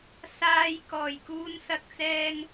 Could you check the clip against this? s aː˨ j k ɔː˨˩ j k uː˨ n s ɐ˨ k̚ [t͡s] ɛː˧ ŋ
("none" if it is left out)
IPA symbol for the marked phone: t͡s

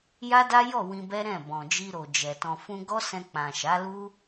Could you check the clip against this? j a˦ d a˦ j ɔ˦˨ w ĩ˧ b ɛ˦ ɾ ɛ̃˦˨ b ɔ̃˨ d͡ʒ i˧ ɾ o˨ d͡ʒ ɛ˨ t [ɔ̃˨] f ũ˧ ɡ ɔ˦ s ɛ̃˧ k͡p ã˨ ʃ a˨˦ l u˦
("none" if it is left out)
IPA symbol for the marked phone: ɔ̃˨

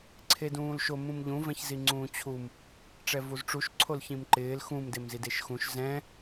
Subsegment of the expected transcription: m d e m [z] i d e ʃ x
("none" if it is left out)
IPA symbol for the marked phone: z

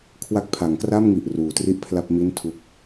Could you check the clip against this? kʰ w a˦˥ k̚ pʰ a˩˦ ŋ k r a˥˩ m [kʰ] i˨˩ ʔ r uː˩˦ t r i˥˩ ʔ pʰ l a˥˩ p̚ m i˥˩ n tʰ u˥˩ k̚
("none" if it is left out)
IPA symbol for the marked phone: ŋ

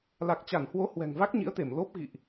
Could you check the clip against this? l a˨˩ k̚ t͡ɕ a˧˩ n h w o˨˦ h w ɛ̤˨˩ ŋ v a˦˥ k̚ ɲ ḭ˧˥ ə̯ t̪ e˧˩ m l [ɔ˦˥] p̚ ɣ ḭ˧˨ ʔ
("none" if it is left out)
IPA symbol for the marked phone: o˦˥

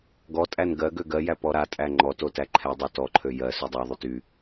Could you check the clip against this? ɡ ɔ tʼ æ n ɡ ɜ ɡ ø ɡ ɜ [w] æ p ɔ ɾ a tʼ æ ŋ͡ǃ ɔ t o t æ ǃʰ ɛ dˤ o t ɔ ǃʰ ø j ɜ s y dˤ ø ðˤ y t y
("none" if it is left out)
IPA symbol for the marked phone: j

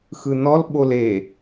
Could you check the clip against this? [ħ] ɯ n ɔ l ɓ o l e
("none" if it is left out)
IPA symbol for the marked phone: x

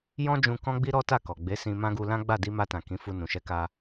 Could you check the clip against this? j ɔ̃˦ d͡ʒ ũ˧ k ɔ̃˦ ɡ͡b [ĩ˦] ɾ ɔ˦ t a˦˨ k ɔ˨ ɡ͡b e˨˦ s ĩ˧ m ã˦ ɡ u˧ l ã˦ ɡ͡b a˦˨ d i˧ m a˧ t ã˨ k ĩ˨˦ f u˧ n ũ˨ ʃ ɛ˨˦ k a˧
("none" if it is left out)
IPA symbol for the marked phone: i˦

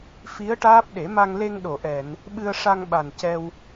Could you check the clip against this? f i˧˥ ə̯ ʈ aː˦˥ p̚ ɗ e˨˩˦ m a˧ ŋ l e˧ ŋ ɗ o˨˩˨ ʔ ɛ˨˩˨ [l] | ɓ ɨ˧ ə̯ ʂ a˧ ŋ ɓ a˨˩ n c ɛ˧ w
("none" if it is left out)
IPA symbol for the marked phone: n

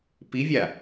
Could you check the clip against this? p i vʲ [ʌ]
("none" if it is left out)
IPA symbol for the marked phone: a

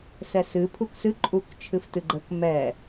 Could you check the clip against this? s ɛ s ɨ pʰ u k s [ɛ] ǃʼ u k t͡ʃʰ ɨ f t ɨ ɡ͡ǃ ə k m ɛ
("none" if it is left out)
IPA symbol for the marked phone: ɨ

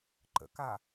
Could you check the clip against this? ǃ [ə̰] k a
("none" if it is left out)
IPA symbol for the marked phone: ə̰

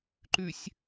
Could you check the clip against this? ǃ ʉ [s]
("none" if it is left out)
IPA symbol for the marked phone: sʲ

